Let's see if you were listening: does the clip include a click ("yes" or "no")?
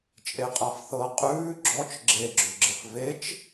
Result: yes